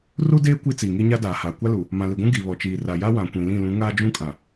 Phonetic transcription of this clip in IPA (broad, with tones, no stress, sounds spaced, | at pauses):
r u˦ d eː˦ kʷ i˦ t͡s iː˨ ŋ i˦ ɲ a˦ d aː˨ h aː˨ kʷ a˦ l u˨ | m ã˨ l i˨ ɡʷ ũ˦ ɡ i˨ β ɔ˨ t͡ʃ iː˨ r a˨ j a˦ w ã˨ kʷ ĩ˨ l ĩ˦˨ l ũ˨˦ ŋ aː˦ d͡ʒ ũ˦ kʼ ã˨